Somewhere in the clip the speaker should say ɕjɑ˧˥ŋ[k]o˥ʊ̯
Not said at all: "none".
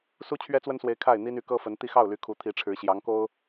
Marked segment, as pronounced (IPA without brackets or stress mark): k